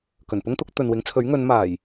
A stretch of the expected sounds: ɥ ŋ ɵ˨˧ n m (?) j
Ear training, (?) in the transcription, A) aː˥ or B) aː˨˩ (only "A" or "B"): B